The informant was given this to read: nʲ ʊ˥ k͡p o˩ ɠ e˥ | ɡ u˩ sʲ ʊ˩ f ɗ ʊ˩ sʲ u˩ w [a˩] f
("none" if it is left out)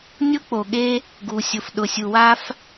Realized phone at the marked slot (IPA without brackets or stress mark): a˥